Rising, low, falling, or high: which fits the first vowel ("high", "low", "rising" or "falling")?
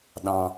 low